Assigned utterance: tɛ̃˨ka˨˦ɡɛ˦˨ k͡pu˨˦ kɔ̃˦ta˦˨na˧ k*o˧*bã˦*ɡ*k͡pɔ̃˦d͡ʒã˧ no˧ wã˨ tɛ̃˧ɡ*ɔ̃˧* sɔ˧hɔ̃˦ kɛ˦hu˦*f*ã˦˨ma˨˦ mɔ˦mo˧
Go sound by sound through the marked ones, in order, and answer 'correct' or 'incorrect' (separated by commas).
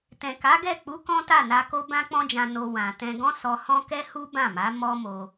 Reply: incorrect, incorrect, incorrect, incorrect